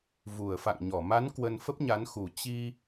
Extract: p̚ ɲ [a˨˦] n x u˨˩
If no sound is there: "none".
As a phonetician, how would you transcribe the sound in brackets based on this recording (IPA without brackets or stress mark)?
a˨˦